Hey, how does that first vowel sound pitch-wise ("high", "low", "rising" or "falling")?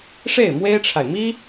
falling